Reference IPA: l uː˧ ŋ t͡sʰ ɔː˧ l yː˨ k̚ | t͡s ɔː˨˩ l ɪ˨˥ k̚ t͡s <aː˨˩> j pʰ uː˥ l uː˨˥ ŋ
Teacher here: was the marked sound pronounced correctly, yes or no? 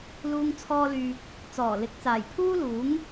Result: yes